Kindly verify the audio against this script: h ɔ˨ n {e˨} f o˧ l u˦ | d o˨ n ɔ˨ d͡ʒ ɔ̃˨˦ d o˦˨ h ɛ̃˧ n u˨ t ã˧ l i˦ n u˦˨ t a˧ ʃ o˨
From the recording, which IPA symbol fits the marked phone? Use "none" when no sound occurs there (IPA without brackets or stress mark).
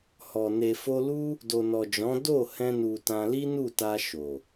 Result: e˨